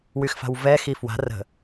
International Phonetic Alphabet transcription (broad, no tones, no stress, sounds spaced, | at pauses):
w y x f a̤ w v ɛ x i f w a̤ r ə̤